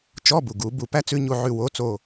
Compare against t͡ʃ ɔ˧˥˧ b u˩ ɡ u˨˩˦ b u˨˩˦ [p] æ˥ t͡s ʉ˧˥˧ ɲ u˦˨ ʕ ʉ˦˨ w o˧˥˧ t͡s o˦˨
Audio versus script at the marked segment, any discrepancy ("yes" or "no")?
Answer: no